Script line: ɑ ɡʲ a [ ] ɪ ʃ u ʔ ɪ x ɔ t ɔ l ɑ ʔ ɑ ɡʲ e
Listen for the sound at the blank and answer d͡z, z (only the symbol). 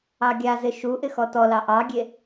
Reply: z